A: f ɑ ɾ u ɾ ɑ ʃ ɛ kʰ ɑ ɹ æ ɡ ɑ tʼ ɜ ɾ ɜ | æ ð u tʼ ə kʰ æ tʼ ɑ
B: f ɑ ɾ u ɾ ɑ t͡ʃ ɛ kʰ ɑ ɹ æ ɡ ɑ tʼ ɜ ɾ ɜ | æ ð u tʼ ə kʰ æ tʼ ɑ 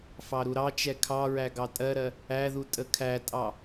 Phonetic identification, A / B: B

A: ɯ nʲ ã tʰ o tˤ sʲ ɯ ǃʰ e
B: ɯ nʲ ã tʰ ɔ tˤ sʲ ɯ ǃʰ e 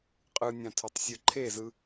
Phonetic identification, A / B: A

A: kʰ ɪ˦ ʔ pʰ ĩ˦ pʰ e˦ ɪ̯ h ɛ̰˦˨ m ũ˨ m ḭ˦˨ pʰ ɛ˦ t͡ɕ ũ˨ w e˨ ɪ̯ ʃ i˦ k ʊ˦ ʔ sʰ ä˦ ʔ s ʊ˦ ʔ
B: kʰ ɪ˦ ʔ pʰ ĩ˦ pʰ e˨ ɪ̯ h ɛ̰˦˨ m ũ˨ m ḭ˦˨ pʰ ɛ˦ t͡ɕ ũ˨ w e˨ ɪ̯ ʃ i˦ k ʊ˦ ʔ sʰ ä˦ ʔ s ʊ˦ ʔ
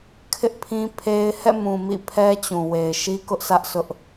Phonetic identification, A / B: A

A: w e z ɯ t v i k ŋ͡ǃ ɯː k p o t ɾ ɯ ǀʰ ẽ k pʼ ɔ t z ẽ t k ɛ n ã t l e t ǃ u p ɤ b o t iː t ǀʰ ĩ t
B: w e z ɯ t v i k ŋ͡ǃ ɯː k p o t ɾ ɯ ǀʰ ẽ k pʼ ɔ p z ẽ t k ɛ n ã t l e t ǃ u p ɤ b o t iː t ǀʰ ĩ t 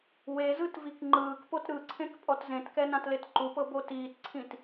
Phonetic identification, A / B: A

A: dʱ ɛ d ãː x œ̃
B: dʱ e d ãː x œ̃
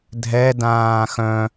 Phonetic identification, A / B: A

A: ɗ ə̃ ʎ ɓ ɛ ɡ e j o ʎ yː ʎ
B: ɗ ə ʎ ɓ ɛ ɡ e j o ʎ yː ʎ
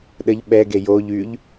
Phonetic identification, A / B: B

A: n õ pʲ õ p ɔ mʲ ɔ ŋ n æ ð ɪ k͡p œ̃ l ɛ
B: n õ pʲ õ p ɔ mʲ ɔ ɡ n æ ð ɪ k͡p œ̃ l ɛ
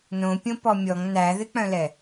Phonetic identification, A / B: A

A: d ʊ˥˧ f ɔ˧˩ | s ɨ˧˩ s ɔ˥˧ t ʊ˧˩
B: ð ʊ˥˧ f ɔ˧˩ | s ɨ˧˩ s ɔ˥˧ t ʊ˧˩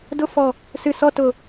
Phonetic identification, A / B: A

